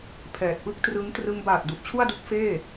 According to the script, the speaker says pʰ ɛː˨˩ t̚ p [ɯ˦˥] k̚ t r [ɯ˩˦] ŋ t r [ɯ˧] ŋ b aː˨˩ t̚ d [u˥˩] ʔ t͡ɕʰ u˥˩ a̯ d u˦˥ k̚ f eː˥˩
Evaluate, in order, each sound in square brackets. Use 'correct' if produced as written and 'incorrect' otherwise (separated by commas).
incorrect, incorrect, correct, incorrect